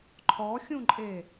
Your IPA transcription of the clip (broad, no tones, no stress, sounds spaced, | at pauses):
ǃʰ ɔ xʲ ũ ǃʼ e